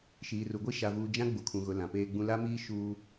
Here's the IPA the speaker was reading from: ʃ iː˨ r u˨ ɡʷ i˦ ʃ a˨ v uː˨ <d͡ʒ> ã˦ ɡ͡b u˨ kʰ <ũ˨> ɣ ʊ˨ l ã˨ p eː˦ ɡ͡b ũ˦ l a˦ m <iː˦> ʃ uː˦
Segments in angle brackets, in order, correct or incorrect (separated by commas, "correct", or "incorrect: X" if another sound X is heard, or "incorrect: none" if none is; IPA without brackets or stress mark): correct, correct, correct